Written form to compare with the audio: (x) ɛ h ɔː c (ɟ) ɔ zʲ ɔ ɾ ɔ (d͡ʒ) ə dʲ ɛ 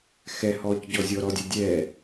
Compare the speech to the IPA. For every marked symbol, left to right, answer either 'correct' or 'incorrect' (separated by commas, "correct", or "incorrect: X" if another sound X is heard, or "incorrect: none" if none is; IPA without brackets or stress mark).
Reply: correct, correct, incorrect: dʲ